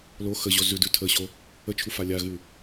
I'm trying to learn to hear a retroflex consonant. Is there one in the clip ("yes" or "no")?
no